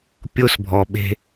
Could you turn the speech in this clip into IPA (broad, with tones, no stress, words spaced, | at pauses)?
pʲo˧sbʱɔ˨ ɓe̤˧